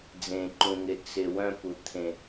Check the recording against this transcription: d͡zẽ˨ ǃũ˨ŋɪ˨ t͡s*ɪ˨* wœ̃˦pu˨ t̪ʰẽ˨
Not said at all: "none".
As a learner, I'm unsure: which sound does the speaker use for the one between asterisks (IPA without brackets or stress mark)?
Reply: ɪ˨